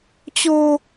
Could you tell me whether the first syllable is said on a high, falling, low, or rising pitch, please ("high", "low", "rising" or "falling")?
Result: low